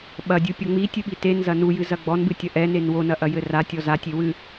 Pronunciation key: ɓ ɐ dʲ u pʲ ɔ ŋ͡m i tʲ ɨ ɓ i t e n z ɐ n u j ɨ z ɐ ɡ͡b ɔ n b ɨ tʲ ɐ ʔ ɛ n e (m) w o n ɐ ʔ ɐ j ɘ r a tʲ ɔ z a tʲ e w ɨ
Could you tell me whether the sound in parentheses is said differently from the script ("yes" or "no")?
yes